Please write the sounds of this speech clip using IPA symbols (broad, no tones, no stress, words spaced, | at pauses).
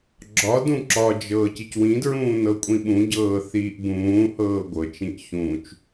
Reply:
ɡ͡ǁɒ dũǁɒd͡ʒɤːc icwĩdɹũː nɤkʷʼĩɓũɟɤː θiːʔbũːhɤː ɡʷɤt͡ʃĩʔ çũːt͡ʃ